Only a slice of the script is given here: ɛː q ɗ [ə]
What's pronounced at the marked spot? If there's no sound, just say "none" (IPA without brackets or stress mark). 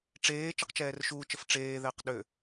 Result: ø